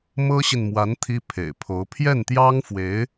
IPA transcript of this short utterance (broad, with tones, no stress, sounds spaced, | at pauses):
m ɤ˥ ɕ i˨ n m w a˧˥ n t̪ʰ i˥ pʰ ḛ˨˩ ɪ̯ pʰ o˧˥ ʊ̯ pʰ j ɛ˥˩ n t̪ j ɑ˥ ŋ f w e˧˥ ɪ̯